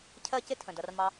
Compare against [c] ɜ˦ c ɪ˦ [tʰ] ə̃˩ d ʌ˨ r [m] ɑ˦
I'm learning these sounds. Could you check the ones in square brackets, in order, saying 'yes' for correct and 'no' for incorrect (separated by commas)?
no, yes, yes